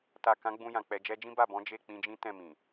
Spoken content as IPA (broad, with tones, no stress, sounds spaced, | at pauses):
t a˨ k ã˨˦ ɡ͡b ũ˧ j ã˨ k͡p ɛ˨ d͡ʒ ɛ˧ d͡ʒ ĩ˦ b a˦˨ b ɔ̃˨˦ d͡ʒ e˦˨ k͡p ĩ˧ d͡ʒ ĩ˦ t ɛ̃˦˨ m ĩ˨